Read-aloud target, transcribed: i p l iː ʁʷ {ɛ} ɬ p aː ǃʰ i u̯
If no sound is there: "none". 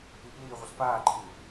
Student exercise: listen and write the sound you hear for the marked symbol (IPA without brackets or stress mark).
ə